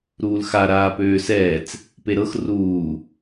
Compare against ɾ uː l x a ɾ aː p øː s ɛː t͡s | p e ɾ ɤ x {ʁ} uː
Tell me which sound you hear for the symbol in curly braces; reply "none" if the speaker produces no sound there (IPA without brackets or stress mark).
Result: r